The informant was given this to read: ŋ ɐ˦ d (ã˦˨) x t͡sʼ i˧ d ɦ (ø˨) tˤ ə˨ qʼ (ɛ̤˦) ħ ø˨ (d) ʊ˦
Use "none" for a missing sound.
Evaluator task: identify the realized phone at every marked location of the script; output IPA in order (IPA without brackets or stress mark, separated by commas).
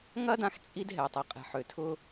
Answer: ã˧, ɛ˨, ɛ̤˨, tʰ